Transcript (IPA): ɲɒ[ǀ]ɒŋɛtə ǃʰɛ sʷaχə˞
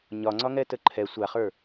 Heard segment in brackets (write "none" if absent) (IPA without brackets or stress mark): ŋ͡ǀ